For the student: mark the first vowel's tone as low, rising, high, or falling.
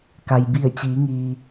low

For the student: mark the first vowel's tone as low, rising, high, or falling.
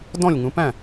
falling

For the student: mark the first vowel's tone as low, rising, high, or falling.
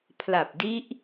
low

